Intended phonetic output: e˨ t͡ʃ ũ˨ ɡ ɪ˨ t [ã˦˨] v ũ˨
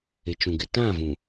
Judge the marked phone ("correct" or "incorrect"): correct